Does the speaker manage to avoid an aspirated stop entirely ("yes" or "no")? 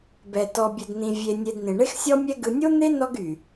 yes